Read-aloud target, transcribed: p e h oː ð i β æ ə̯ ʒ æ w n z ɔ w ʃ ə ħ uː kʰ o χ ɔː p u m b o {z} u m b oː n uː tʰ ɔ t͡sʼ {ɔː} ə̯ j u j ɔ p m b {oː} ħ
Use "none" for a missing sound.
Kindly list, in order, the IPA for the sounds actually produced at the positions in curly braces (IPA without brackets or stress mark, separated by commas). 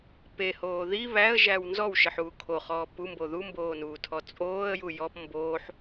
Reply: ð, oː, oː